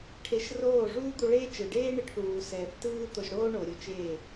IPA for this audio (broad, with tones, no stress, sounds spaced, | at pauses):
ʈʰ e˧ ʃ r oː˦˨ ʐ uː˦ d̪ u˧ ɭ eː˦ t͡ʃ ɯ˨ ɖ eː˦ ɳ e˧ ʈ θ uː˨ s ɛː˨ θ t ɯː˦ t̪ o˧ ʒ ɽ oː˦ ɳ o˨ ɾʲ o˦ t͡ʃ eː˦˨